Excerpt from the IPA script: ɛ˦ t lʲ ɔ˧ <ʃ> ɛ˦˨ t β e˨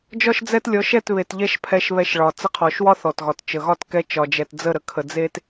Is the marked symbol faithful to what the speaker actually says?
yes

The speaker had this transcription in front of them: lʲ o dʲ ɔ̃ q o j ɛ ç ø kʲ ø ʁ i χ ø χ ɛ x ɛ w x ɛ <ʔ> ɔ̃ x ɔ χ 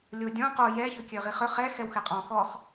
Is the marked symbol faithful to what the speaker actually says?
no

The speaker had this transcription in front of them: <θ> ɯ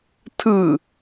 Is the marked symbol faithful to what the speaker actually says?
no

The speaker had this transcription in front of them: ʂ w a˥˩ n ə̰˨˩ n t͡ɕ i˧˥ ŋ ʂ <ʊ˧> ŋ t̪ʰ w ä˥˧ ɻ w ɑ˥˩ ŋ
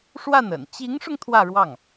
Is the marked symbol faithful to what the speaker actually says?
yes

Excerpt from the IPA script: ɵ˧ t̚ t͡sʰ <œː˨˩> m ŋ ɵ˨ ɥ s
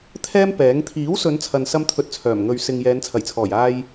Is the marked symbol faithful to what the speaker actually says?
yes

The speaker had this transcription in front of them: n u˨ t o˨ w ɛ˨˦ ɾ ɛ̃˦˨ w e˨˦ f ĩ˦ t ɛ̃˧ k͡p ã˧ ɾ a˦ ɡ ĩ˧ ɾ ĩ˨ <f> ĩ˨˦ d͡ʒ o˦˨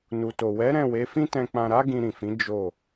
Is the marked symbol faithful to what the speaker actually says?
yes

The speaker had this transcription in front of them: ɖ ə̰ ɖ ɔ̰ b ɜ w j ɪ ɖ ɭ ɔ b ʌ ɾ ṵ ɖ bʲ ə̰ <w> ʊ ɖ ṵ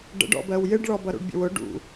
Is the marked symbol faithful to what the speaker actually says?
yes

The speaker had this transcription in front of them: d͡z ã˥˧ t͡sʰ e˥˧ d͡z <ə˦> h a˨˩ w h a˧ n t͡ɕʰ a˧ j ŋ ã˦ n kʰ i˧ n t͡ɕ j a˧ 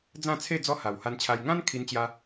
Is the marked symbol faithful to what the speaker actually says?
no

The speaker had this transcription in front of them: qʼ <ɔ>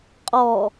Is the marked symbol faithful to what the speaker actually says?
yes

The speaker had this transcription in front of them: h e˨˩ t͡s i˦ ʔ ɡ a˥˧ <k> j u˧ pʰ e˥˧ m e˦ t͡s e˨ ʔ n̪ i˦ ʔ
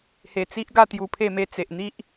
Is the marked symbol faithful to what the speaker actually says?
no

